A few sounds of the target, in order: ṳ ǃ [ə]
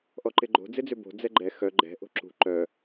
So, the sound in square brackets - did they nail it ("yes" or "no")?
no